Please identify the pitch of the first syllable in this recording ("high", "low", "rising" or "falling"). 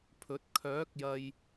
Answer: rising